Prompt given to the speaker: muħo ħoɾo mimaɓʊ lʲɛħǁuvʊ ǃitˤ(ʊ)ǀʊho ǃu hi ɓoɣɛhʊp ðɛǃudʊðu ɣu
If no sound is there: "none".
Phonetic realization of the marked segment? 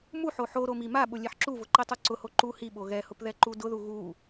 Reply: u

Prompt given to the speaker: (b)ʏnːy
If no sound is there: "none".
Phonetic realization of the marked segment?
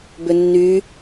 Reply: b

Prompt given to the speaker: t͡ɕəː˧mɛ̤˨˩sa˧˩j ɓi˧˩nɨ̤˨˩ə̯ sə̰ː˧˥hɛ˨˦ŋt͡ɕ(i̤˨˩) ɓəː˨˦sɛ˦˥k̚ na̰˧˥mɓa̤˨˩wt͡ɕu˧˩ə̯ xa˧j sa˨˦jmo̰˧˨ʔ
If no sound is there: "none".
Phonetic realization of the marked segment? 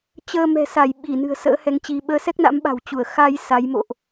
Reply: i˨˦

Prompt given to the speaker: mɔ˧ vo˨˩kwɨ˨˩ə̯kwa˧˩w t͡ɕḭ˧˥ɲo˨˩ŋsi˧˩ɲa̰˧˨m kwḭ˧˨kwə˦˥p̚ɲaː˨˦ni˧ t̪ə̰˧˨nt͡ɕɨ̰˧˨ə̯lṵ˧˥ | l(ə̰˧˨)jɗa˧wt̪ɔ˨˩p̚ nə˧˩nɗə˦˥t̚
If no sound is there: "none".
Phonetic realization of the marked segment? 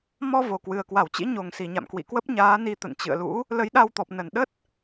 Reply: ə˨˦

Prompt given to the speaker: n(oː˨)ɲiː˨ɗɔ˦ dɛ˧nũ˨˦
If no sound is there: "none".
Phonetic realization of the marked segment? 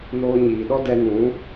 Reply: oː˧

